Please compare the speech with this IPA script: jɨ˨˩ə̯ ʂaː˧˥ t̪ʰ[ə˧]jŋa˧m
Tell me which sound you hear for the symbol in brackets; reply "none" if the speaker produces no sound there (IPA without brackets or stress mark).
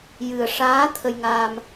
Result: ə˧